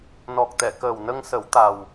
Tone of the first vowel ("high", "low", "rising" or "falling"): low